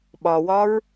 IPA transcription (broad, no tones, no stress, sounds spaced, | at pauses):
ɓ ɒ w ɒ ɹ